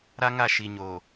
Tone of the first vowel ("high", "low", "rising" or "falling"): high